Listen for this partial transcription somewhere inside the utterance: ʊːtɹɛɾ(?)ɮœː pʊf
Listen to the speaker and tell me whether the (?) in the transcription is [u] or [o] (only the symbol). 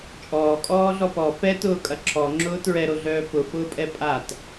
o